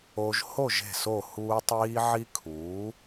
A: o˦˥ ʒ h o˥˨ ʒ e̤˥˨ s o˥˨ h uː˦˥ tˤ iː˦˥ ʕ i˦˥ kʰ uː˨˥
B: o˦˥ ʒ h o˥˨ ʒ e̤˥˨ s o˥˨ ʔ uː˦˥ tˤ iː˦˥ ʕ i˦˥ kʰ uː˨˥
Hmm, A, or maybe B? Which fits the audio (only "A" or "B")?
A